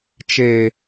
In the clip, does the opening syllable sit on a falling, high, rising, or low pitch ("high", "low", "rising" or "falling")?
low